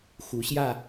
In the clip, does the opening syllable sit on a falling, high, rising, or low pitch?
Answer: rising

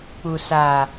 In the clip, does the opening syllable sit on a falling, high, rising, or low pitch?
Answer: low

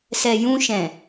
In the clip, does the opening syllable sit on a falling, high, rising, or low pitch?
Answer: low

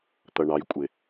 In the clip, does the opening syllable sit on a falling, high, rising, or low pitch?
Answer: low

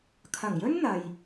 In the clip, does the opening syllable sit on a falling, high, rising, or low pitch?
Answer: low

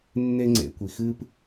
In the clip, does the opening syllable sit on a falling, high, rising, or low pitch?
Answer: high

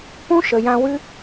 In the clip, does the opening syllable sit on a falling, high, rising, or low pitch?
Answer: high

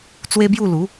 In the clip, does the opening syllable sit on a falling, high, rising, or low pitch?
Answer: high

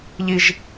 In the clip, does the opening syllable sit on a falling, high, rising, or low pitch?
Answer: low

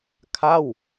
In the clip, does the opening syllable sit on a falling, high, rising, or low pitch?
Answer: falling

